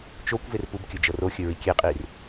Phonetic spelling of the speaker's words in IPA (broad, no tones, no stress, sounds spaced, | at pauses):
t͡ʃ o kʷ v e r p u b kʲ ɵ d͡ʒ ɤ r o xʲ ɵ ɹ i kʲ e qʼ i r